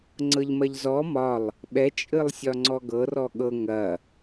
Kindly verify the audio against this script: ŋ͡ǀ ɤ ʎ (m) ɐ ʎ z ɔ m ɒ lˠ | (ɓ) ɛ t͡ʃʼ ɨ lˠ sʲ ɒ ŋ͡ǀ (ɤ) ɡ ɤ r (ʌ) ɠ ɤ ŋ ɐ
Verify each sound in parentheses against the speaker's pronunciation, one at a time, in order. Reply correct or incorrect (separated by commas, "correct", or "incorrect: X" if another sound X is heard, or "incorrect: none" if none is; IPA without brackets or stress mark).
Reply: correct, correct, incorrect: ɔ, incorrect: ɔ